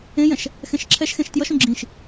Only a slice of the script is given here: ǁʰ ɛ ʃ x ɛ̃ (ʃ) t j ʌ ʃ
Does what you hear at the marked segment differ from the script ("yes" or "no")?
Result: no